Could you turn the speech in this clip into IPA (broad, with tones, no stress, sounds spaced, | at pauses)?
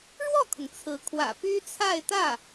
ɻ w ɔ˥˩ kʰ ʊ˩ ŋ t͡sʰ ɹ̩˧˥ kʰ w ä̰˨˩ p y˥ t͡sʰ a˥˧ ɪ̯ t̪ ä˥˩